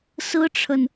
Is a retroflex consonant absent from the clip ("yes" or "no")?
no